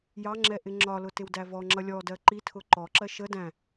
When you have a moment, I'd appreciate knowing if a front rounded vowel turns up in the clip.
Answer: no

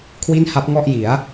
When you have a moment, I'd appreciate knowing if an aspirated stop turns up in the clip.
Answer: yes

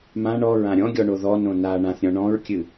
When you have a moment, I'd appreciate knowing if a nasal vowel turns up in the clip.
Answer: yes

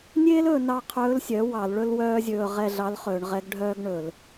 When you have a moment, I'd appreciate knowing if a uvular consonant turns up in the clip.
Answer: yes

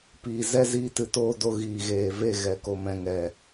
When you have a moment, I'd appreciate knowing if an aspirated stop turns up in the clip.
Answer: no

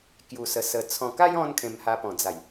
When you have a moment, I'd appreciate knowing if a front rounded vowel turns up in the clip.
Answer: no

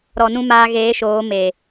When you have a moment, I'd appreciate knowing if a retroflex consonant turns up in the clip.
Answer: no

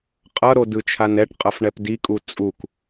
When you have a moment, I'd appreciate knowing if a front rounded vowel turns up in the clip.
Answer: no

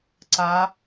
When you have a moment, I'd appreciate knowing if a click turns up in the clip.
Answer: yes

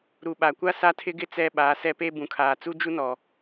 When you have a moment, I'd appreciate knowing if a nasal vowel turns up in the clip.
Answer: yes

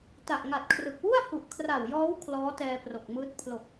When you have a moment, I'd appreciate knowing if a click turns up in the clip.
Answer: no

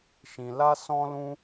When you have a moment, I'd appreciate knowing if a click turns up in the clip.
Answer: no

